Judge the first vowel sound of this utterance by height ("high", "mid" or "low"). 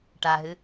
low